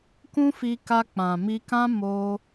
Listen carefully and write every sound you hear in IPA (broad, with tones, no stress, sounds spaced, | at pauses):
k ũ˦ f i˧ k a˧ k͡p ã˨ m i˧ k ã˦ m o˧